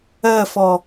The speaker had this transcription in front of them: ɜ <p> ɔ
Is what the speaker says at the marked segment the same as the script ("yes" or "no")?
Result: no